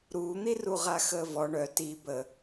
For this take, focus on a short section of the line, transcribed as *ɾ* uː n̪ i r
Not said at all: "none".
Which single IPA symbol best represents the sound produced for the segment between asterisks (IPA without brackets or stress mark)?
ɾ